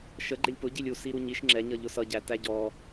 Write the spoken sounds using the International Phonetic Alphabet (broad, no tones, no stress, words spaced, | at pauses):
ʃə ɡ͡ǃɪlʲpʊɟilʲ usi ɾuɲiʃ ŋ͡ǁɛɲʌ ʎʊsʌɟæ tæɟɔ